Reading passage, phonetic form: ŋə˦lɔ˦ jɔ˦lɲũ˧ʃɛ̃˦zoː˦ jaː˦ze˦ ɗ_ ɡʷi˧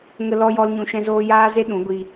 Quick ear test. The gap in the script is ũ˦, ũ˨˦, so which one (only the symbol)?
ũ˨˦